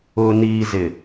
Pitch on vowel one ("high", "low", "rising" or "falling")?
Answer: low